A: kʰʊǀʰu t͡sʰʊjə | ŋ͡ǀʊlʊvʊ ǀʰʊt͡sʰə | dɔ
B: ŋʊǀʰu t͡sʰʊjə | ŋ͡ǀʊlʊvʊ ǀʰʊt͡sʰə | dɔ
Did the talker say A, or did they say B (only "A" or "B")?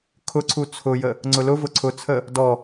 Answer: A